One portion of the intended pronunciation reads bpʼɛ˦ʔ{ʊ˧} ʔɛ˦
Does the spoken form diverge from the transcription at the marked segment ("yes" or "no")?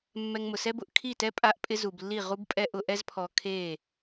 no